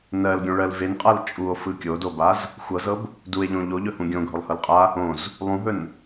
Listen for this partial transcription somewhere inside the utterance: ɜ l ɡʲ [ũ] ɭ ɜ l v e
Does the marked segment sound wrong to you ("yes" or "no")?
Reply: yes